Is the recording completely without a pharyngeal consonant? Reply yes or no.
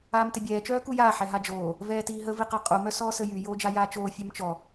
no